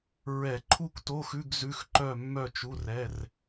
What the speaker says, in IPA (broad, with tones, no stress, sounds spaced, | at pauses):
ɹ ɛ˧˩˧ ǃʰ u˥˨ kʷ t o˧˥˧ x ʉ˧˥˧ ɡ z ʉ˧˥˧ x ǃ œ˥˨ mː œ˥˨ t͡ʃ u˧˥˧ r ɛ˧˥˧ r